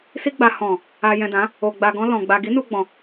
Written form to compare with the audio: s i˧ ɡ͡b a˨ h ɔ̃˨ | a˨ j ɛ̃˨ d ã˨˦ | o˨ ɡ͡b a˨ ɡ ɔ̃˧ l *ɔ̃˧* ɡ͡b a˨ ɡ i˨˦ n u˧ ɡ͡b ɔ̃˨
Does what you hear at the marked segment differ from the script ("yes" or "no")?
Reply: yes